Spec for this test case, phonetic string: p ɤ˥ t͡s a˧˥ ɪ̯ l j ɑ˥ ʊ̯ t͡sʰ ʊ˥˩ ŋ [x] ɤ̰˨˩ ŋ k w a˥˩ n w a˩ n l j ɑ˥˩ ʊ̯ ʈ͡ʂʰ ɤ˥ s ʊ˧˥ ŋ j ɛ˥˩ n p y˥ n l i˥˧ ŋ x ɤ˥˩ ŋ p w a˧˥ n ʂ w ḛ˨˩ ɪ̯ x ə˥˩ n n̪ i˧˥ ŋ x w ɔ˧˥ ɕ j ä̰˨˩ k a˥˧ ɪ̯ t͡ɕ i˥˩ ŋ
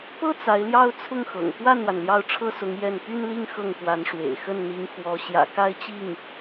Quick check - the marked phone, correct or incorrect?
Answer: correct